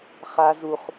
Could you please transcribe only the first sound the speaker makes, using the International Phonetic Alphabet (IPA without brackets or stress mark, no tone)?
χ